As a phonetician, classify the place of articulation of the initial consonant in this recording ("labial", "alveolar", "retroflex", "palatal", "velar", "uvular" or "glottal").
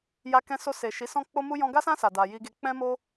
palatal